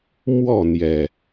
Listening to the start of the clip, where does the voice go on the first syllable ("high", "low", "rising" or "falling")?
falling